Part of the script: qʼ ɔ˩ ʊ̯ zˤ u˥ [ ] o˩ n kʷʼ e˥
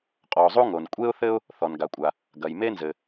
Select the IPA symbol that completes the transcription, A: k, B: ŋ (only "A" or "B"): B